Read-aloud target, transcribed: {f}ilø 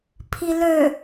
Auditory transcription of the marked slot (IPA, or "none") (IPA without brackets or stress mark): pʰ